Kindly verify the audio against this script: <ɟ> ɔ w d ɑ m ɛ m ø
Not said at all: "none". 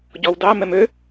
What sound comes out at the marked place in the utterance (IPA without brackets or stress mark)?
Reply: ɟ